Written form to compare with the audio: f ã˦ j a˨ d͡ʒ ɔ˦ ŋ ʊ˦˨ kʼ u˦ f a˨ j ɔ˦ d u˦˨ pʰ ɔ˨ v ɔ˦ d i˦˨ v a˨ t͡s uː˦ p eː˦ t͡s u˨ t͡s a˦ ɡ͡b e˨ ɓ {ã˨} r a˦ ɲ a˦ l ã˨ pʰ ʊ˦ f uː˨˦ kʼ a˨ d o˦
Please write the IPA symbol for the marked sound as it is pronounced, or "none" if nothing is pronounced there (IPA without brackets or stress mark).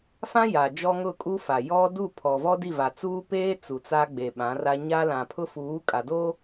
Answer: ã˨˦